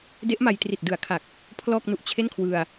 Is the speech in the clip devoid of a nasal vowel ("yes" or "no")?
yes